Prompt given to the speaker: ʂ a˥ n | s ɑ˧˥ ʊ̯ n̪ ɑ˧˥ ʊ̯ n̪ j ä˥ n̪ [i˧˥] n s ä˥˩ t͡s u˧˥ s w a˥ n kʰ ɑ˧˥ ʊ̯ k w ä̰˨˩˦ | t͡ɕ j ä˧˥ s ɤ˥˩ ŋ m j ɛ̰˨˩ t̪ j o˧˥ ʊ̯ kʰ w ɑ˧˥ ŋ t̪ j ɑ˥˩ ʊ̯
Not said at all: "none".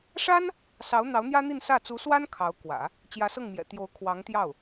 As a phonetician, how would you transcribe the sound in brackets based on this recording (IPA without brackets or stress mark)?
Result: i˥˧